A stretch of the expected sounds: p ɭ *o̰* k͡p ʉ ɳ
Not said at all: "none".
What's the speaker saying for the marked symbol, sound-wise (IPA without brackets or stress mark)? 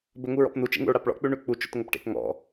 ɔ̰